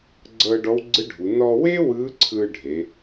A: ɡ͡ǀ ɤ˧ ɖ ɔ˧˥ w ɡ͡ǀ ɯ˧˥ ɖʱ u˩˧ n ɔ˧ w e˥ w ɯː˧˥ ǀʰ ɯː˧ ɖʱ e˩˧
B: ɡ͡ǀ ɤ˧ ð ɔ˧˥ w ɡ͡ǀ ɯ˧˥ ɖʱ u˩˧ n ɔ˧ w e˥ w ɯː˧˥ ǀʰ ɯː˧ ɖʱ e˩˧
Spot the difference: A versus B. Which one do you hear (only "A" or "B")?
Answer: A